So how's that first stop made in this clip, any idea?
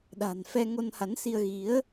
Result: implosive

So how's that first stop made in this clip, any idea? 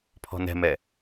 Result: aspirated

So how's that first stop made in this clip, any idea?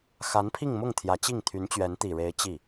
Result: aspirated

